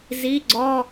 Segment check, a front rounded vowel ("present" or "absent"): absent